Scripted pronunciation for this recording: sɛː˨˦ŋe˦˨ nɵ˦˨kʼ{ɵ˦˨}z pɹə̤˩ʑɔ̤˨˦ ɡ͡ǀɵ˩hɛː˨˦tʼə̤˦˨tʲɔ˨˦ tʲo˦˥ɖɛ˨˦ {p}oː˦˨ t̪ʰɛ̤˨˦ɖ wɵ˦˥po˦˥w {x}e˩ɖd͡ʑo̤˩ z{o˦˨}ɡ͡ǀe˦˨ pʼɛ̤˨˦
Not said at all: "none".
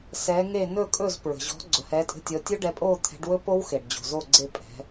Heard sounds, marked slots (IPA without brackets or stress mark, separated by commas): ɵ˦˨, pʼ, x, o˦˨